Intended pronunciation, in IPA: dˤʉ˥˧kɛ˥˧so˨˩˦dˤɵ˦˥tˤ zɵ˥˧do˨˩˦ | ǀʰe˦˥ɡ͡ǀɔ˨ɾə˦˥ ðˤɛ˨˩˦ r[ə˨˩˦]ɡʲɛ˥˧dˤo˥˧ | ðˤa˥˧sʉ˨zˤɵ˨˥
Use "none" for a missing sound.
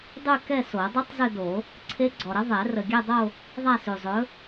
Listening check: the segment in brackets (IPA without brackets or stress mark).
ə˨